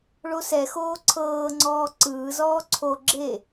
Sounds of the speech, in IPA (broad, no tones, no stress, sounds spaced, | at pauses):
ɭ o s ɛ x oː ǀʰ ɤː ŋ͡ǀ ɔː ǀ ɯː z ɔː ǀʰ o ɡ͡ǁ e